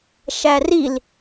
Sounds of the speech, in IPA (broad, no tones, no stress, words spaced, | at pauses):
ʃæril